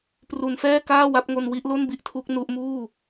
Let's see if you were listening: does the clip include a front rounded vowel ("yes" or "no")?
no